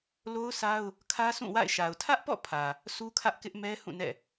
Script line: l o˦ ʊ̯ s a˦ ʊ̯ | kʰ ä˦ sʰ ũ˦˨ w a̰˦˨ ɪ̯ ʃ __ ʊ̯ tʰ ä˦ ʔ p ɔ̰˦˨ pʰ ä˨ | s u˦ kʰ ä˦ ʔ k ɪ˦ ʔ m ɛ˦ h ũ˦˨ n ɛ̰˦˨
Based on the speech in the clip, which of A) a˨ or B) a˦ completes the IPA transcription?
A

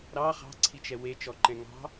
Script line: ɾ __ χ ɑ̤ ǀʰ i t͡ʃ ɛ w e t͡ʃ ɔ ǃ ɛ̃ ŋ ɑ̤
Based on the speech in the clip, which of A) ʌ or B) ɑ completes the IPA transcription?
B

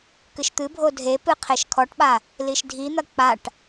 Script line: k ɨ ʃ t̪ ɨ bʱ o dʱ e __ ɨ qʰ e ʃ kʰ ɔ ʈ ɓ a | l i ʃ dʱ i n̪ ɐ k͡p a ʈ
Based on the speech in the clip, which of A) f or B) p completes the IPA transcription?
B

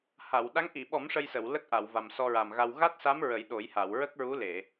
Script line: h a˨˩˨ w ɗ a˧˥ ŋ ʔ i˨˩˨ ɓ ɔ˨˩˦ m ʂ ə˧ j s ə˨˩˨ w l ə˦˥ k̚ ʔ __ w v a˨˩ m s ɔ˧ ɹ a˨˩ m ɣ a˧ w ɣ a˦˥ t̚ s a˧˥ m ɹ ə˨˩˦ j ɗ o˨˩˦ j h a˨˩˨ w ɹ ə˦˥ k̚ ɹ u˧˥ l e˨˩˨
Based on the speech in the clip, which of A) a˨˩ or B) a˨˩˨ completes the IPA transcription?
B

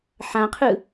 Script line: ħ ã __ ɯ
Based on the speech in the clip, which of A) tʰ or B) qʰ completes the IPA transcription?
B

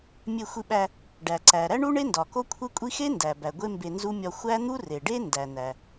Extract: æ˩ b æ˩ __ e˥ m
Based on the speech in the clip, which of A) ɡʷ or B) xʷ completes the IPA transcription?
A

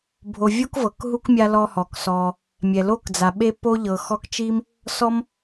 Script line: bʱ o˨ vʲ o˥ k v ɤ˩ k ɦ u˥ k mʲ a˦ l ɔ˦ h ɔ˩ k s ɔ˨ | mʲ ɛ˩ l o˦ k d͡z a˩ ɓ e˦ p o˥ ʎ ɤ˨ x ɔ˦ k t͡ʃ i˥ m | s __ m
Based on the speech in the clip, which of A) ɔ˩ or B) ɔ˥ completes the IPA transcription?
B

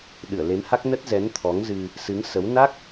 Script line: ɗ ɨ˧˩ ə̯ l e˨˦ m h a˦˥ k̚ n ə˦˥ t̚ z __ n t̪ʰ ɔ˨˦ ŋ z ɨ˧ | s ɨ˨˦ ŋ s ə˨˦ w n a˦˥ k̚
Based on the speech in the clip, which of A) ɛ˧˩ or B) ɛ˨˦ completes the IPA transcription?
B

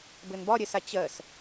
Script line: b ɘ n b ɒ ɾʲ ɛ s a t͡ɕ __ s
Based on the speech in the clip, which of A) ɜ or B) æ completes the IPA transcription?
A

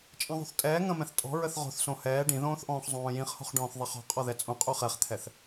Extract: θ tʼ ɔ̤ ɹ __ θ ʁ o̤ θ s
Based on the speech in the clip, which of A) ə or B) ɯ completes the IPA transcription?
A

